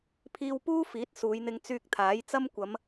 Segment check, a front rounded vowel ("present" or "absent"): present